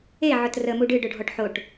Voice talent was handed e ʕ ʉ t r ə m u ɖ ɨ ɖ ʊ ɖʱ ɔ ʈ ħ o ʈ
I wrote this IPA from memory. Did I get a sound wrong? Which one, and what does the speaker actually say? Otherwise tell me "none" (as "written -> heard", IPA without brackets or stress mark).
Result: ʉ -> ʊ